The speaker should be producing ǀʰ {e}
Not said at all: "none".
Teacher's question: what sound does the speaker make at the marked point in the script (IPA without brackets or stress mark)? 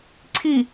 i